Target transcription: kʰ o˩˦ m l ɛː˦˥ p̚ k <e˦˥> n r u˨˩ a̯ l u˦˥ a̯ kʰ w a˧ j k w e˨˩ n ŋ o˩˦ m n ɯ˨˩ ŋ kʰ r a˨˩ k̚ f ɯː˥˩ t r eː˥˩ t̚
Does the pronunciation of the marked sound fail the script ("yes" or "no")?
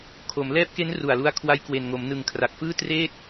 no